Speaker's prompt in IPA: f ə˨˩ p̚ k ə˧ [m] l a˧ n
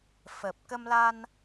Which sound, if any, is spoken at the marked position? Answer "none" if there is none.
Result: m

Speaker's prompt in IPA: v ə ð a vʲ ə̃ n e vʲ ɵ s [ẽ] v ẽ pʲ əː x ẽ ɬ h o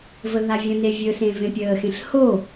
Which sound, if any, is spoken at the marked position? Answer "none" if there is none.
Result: ẽ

